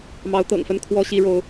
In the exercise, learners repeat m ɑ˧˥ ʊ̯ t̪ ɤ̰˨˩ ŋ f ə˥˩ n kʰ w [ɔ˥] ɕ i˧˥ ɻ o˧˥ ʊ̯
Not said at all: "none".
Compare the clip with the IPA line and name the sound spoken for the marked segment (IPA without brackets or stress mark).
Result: ɔ˥